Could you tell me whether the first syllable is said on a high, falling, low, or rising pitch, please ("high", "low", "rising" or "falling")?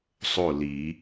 falling